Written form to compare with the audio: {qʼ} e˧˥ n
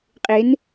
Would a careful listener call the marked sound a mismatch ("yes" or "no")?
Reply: no